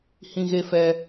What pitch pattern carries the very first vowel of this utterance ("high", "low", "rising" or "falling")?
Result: high